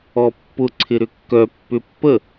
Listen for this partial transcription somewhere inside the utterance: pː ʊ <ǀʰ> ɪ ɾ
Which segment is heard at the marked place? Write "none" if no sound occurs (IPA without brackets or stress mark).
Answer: ǀʰ